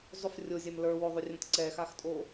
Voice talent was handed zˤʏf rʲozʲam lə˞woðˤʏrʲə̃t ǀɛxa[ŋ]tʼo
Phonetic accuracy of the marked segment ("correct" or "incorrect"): incorrect